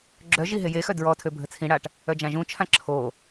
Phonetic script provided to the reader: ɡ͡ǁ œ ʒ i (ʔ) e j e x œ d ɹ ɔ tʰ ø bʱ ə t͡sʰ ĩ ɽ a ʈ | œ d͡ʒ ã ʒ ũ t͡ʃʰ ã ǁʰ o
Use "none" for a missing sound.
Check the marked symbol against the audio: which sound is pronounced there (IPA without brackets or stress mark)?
ɦ